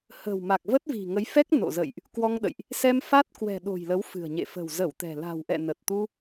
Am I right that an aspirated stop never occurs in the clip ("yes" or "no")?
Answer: yes